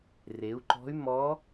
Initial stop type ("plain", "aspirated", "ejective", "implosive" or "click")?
click